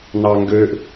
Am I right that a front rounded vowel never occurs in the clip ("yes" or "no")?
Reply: no